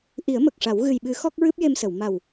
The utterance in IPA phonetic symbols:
ʔi˨˩˦ə̯mə˨˩k̚ʂa˨˩˦w ɣɨ˨˩jɓɨ˨˩˦ xɔ˦˥k̚ɹɨ˦˥p̚je˧msə˨˩˨w ma˨˩w

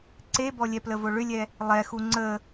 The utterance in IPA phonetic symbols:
ǀebɔlʲɛ pləvoɭʏlʲɛ | lˠɛxu ŋ͡ǀə

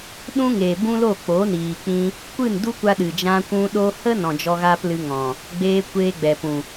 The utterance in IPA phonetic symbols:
ɗũ˦ŋe˨ bũ˦lo˦˨k͡po˨˦niː˨ k͡pĩ˧ | kʷɨ˦˨ndu˦kʷa˧ ɗɨ˨d͡ʒã˧kʷũ˧ ɗo˦ hə˦nɔ̃˨ d͡ʒɔ˧ɣaː˦plɨ˧ŋɔ̃˨ | ɡ͡beː˧ kʷeː˧ɡ͡bɛ˨pũ˨

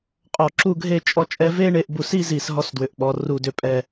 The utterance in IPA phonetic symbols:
qʼɔ˧˩ǁu˥˧ɡʱe˥˧ t͡ʃʼɔ˥t͡ʃʼɛ˥ ve˥ɳe˧ʔbu˧˩s i˥zi˧˩s ɦɔ˥˧sdwʏ˩˧ʔɓɔ˩˧ ru˧˩dʏ˧˩pʼɛ˧˩

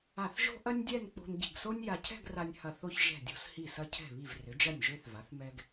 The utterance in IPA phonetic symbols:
a˧˩θʒo̤˥ ʔɐ˥nʲdʲɛ˥˧n k͡po̤˧nɟi̤˧˩ɡso˥nʲ ja˧cʰɛ̤˥˧ɡra˧nʲ hɐ˧˩θo˥˧ç ʒɛ̤˧˩dʲo̤˧shi˧˩ sɐ˧cʰɛ̤˧˩βi˧˩v rʏ˩˧d͡ʒɐ˧˩nʲ ʒø˧θva˩˧θ mɛ˧ɡ

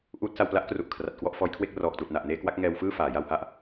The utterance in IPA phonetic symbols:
ʔuː˦˥t̚ sa˧wpla˦˥ʔkru˨˩ʔ kʰra˨˩t̚kwɔ˥˩ʔfɔː˦˥jkʰwe˥˩k̚ rɔː˨˩k̚tuː˨˩t̚na˨˩ʔneː˧ kwa˦˥k̚ŋɛː˧wfɯː˥˩ faː˩˦ja˧wha˦˥ʔ

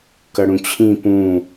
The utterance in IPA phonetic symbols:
kʌɽũt͡ɕʰĩ pũ

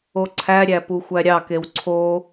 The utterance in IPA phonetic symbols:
oǀʰæɾʲæ puxʷæɾʲɑkew ǀʰo

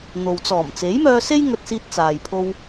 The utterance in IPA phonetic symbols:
n̪o˨w t͡sɔː˨˩mt͡se˨˥jmœː˧se˥j ŋɵ˧t̚siː˧t̚t͡saː˨jpʰo˧w

